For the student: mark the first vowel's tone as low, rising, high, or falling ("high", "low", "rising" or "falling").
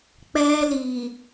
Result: high